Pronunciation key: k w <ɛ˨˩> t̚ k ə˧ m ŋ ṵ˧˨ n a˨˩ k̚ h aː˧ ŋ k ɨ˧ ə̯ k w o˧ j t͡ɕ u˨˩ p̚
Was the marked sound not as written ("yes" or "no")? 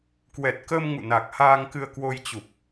no